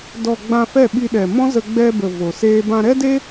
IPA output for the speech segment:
d ɔ˨ ɡ͡b ã˧ f ɛ˦˨ ɓ i˧ ɗ ɛ˨ m ɔ̃˦ z ə˧ ɡ͡b ɛ˧ b ə˨ v o˨ s eː˦ b ã˧ ɾ ɛ˦ d e˦

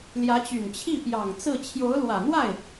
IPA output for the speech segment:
l j ä˧˥ t͡ɕ y˨˩ n t͡ɕʰ i˥˩ p j ɑ˨˩ ŋ t͡s ɹ̩˥˩ t͡ɕʰ j o˧˥ ʊ̯ l w ä˨˩ n̪ w a˥˩ ɪ̯

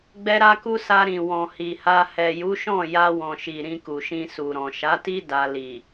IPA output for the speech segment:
ɡ͡b ɛ˧ ɾ a˧ k u˧ s a˧ ɾ ĩ˨ w ɔ̃˨ h i˨ h a˧ h ɛ˨ j u˨˦ ʃ ɔ̃˦˨ j a˧ w ɔ̃˨ ʃ i˨ ɾ ĩ˧ k u˨ ʃ ĩ˧ s u˨ ɾ ɔ̃˨ ʃ a˨˦ t i˦ d a˧ l i˨

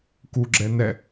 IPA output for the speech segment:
k u ɡ͡ǁ ɛ n ɛ

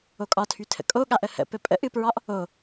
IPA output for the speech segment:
o kʼ ɒ tʰ y tʰ ə̰ kʼ o ɠ a ʔ ə h ə̰ p ɘ pʼ ə̰ ʔ ɨ p ɹ ɒ ʔ | o

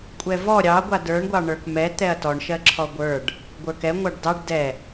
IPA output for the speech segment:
kʷʼ ɛ v ɔ ɾʲ ɑ ɡʷ a d ə˞ ɳ ɡʷ ɑ ɳ ə˞ k m ɛ t̪ ɛ ɐ̯ t ɔ ɳ ʃ ɜ ǁʰ ɔ ɡʷ ə˞ ɖ | ɡʷ ə˞ k ɛ ŋʷ ɑ ɖ d ɑ ɖ d ɛ

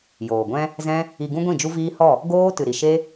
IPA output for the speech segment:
j oː˨ ɡʷ ɛ̃˦ | z ɛ̃˦ | i˧ ɡ ũ˦ ɡʷ ĩ˦˨ d͡ʒ u˦ v iː˦ h ɔ˦˨ | ɡ oː˦ t ɨ˨ ɾ i˨ ʃ e˦

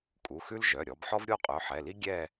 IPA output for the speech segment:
kʼ u˩˧˩ x ʉ˥ l ʒ œ˩˧˩ ɾʲ ɔ˩˧ b ħ ɔ˥ v ɾʲ o˥˧ qʼ œ˩˧˩ ħ ɛ˩˧˩ l i˥ ɡʲ ɛ˥˧

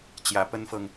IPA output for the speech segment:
t͡ɕ j ä˨˩ p ə˥ n f ɤ˨ ŋ

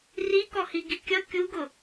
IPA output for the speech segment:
r i k ɔ h i ɡ i kʲ ʌ kʲ u ɡ ʊ

